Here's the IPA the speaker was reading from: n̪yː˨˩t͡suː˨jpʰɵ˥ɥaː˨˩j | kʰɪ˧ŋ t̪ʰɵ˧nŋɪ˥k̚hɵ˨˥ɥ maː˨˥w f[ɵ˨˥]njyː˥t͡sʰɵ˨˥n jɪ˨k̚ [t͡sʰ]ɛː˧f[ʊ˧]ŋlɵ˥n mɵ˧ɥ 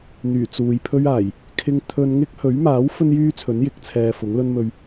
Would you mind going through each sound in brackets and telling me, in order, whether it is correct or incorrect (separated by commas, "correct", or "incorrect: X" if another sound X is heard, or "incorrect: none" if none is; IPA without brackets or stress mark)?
incorrect: ɵ˥, correct, incorrect: ʊ˨˥